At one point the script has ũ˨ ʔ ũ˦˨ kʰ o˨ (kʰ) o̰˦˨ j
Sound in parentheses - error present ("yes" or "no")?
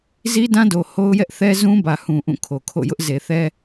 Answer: no